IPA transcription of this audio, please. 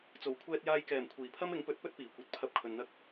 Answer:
t͡so˨˩wkʷʰɛː˧t̚jaː˧jkɛː˨˩m kʷʰiː˨˩pʰɐ˥m ɪ˨˥ŋpɵ˨˥t̚pɵ˥t̚ piː˨˩kʷɐ˧t̚ pʰɐ˧p̚kʰɵ˨nn̪ɐ˥k̚

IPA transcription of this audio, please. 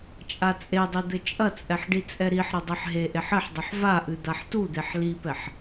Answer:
t͡ʃʼat͡sʼedˤi d̪ɘt͡ʃʼɐt͡sʼɛħ ɖit͡sʼɛɾiħɾɘ dˤiħɦeʔeħ ɘħdˤɨħ vaʔɨ d̪aħtud̪eħ lipɛħ

